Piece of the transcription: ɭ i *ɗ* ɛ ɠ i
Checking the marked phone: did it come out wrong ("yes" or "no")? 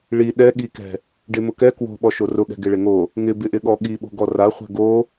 no